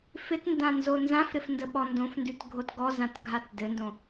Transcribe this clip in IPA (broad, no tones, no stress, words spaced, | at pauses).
fɪtndãnzo nzãfɾɪf ndəɓɔndõfndʉt ɡʱotɡɔzãtɡʱat dɘndõ